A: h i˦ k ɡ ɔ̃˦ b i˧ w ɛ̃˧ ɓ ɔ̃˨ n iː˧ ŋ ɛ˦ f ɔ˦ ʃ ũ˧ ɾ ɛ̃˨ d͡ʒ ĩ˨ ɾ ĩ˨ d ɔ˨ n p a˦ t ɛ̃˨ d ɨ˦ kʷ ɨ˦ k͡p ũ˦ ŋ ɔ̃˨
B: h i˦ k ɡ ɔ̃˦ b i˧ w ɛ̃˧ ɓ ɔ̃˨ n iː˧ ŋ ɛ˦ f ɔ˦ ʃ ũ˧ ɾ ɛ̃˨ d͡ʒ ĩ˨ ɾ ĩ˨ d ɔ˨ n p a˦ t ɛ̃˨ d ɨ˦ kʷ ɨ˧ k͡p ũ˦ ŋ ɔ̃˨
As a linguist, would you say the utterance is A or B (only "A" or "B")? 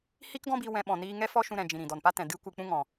B